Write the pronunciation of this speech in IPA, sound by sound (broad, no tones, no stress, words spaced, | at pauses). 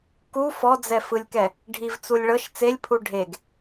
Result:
ku fɔd͡zɛfɯlʲkɛ | ɖʱivt͡sulʲ ɭɤʃ t͡selʲpʰu ɖʱeɡ